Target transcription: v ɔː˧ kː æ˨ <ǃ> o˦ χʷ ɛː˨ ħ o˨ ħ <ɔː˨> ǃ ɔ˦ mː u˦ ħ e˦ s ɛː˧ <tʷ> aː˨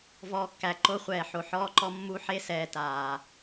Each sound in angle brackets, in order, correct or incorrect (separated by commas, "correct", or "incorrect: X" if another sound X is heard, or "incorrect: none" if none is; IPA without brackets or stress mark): correct, incorrect: ɔː˦, incorrect: t